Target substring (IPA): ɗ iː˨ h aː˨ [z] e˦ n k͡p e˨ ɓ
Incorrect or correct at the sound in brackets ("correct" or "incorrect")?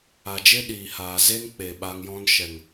correct